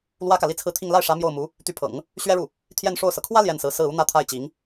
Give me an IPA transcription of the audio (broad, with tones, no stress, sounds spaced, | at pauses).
l w ä˥ k ä˨ l i˥˧ t͡sʰ ɹ̩˥˧ t̪ʰ i˥˧ ŋ l a˥˩ ɪ̯ ʂ ä˧˥ m j o˥˩ ʊ̯ m u˧˥ | t̪ y˧˥ pʰ ɤ̰˨˩˦ ŋ | ɕ ɥ ɛ˥ ɻ u˥˩ | t̪ʰ j ɛ˥˧ n ʂ o˥˩ ʊ̯ s ɤ˩ kʰ w ä˥ l j ɛ˥˩ n s ɹ̩˧˥ s ɹ̩˥˩ u˥ n̪ ä˥˧ t̪ʰ a˥˩ ɪ̯ t͡ɕ i˧˥ ŋ